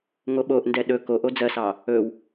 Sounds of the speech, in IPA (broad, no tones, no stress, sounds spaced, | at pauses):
ŋ o ɓ o ʔ n d ɛ ɗ ɵ k o ʔ o d͡z ɜ s ɑ | ɵ w